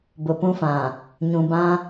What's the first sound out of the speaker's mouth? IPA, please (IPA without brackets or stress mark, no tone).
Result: b